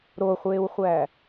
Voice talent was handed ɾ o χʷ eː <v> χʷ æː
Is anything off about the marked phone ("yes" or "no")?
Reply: yes